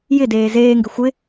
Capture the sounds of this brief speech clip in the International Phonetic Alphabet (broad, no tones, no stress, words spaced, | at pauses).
jɪdeː zeːŋɡɪ xʷɪ